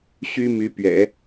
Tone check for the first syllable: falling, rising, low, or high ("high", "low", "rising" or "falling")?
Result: high